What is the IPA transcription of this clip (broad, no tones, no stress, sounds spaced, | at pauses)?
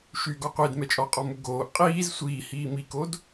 ʃ y ɡ ɔ qʷ i d m ɛ t͡ʃʼ ɔ qʼ ɔ m u ɡ oː ʔ qʼ iː z sʷ iː h iː m i k o d